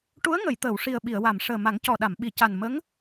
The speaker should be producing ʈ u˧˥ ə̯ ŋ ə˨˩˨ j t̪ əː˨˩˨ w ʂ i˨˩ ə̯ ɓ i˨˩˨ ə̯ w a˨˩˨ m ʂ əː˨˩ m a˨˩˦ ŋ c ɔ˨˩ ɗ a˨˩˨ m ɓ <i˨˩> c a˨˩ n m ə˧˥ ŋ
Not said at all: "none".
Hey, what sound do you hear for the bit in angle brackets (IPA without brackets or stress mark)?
i˨˩˨